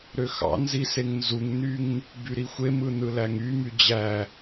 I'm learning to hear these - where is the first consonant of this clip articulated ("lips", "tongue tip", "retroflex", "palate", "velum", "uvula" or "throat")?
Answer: tongue tip